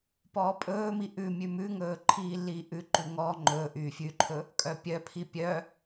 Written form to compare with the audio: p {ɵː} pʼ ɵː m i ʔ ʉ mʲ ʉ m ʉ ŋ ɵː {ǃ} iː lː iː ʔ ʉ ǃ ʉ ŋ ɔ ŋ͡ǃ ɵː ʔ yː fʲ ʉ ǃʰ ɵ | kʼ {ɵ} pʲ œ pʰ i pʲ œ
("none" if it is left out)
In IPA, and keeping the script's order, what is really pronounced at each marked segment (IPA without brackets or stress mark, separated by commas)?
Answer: ɔː, ǃʰ, œ